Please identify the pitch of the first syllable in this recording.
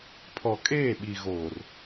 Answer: low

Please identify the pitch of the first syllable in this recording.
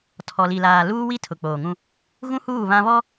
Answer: low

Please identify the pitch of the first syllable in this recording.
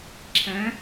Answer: rising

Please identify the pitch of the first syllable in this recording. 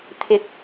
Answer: rising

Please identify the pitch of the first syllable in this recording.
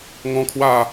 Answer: high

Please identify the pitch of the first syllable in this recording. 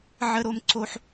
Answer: high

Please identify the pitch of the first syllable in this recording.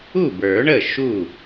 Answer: falling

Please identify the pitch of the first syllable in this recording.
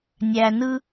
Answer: low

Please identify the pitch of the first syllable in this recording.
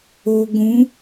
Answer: low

